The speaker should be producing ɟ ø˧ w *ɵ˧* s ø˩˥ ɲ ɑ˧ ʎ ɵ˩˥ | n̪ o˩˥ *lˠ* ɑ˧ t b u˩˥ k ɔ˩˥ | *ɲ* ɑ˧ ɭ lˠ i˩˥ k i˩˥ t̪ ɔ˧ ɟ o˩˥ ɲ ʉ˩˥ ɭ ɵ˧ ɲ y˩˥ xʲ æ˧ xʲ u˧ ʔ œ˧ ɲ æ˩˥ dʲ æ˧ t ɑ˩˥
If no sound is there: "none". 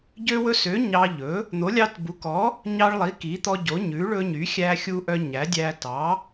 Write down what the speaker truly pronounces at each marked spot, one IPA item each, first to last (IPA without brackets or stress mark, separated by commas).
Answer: ɵ˧, lʲ, ɲ